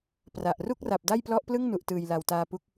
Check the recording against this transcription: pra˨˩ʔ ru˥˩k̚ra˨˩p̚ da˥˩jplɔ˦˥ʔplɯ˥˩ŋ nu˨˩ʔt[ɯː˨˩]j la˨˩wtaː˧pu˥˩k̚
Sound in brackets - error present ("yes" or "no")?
no